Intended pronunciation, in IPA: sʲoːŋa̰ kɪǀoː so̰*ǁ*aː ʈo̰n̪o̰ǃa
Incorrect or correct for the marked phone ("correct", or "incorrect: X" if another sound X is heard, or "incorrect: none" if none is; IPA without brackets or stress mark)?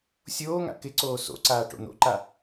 incorrect: ǀ